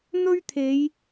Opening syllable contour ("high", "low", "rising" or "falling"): high